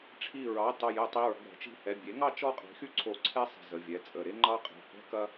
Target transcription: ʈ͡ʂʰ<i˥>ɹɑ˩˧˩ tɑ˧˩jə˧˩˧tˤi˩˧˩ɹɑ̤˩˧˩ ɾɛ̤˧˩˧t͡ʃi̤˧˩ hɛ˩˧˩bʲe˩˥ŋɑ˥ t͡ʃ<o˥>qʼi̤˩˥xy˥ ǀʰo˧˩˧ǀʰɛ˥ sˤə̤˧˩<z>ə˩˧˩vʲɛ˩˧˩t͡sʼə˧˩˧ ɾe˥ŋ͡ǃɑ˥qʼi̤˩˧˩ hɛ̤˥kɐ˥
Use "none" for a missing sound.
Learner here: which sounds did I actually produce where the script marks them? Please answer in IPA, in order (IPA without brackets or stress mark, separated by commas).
i˧˩, ɔ˥, z